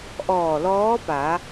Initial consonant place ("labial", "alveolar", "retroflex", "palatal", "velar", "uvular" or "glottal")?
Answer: glottal